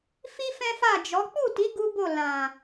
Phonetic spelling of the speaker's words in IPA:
f i˦ f ɛ̃˦ f a˦˨ d͡ʒ ɔ˨˦ k͡p u˦˨ t i˨˦ ɡ u˦ b o˦˨ l ã˨

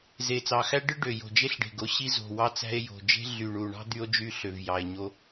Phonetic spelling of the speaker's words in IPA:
z e˨˩ t͡s ɑ˨˩ x æ˥ ɖ ɯ˥ ɖ ø˨˩ j o̤˨˩ d͡ʒ e˥ ɬ ɖ e̤˨˩ ɡ o˥ ɕ i˥ z o̤˨˩ w ɑ˥ t͡s æ̤˥ e̯ j o̤˨˩ d͡ʒ e̤˥ ɮ y˨˩ ɳ u˨˩ ɳ ɑ̤˥ d̪ y˥ o̯ d͡ʒ y˥ ɬ ø˨˩ v j ɑ˨˩ e̯ ɲ o˥

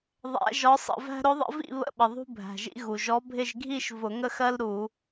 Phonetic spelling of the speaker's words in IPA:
ðˤ æ̰˧˥ ʒ ɒ˧˥ sˤ ə̰˧˩˧ v æ̤˥ ɾ ʊ˧˥ ðˤ ə̰˧˥ v ḭ˥˧ β ə̰˥ ɓ ə˩ ðˤ ṳ˥ bʱ æ̤˩ ʒ ḭ˥ ɣ u˩ ʒ ɔ˧˥ bʱ ɪ˥˧ ʒ ɡʱ i˥˧ ʃ v ʊ˧˩˧ ŋ ə˥˧ x ɜ˥ l ɾ u˧˩˧

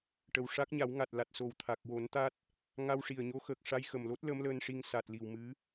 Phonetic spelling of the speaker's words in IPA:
ʈ ə˨˩ w ʂ a˦˥ k̚ ɲ a˨˩˦ w ŋ a˨˩ t̚ l a˨˩ t̚ s o˨˩ w t̪ʰ a˨˩ k̚ w o˨˩˦ n t̪ a˦˥ t̚ | ŋ a˧ w ʂ i˨˩ ə̯ ɲ o˧˥ x əː˨˩ k̚ ʂ a˧ j x ə˨˩ m l o˦˥ t̚ l ə˧˥ m l əː˧ n ʂ i˧ ŋ s a˨˩ t̚ l i˨˩ w m ɨ˧˥

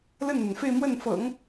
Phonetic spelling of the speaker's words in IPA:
l ə˥˩ n n̪ a˩ n f e˥˧ ɪ̯ m w ə˥˩ n f ɤ̰˨˩˦ ŋ

